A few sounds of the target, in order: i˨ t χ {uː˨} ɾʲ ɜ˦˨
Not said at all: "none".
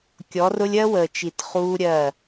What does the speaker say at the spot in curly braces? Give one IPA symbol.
uː˦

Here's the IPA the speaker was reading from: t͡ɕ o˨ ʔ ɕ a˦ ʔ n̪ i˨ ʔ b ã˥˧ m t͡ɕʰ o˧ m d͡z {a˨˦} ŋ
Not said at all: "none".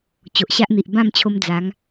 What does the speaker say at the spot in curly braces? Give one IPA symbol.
a˨˦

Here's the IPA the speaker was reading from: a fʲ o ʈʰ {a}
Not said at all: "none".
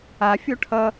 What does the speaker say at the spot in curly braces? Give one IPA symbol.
ʌ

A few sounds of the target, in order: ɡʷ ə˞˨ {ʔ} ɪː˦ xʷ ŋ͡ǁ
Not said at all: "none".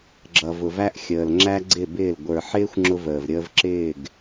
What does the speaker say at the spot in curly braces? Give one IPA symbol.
ħ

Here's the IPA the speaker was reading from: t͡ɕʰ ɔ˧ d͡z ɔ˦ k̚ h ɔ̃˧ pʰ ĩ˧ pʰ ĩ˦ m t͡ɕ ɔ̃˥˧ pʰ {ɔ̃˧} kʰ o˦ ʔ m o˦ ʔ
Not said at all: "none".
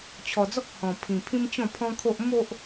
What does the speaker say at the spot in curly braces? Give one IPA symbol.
ɔ̃˦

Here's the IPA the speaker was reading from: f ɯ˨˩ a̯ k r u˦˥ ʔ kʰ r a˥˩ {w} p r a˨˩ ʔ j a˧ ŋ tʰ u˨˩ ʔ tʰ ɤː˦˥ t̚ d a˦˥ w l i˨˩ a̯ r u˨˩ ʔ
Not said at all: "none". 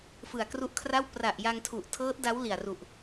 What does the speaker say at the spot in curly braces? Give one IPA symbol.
w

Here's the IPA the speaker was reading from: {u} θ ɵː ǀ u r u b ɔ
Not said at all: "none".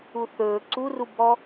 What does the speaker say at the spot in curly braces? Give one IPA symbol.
u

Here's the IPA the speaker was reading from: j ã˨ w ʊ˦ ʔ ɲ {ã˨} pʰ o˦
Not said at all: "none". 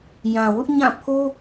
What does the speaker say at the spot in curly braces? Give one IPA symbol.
ã˦˨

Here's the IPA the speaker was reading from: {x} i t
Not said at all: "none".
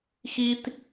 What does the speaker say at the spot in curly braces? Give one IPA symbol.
x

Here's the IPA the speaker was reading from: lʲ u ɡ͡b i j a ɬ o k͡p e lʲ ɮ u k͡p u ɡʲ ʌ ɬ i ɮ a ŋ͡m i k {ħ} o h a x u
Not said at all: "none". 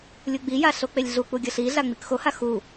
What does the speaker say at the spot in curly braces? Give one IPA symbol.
x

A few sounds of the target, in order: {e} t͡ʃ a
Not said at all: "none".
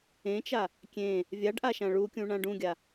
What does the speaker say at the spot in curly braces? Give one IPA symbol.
ẽ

